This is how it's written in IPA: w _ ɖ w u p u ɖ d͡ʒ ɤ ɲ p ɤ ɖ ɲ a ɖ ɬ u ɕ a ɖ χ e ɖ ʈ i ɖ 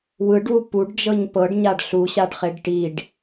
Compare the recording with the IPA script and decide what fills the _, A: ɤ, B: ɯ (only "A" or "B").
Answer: B